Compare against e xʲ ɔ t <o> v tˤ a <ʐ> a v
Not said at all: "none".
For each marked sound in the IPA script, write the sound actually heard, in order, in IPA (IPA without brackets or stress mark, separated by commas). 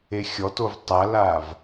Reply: o, l